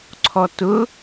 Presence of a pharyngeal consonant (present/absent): absent